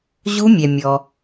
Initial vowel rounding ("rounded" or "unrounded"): rounded